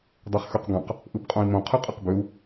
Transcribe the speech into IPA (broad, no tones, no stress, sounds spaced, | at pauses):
dˤ e χ x ø q ɡ ɑ̃ q | ʔ ɯ b qʼ õ i̯ m õ qʰ ɯ qʼ ɯ q b ø u̯